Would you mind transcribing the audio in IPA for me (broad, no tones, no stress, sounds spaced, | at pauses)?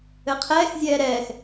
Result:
ɘ qʰ ɛː x zʲ ɛː ɾ ɛː x